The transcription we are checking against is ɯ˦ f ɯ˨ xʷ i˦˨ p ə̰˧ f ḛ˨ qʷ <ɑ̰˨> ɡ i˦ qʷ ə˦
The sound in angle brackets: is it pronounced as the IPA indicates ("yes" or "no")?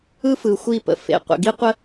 no